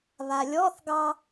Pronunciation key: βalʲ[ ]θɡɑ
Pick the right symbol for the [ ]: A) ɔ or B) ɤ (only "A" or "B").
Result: A